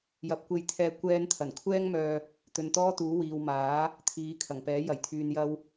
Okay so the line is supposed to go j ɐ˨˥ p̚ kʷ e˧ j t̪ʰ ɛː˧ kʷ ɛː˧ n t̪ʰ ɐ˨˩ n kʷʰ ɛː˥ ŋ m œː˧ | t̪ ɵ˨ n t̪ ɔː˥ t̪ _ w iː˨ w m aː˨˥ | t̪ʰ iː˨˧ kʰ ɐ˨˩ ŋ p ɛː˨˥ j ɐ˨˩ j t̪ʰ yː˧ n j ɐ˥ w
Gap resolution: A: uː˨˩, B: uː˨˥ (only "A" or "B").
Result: B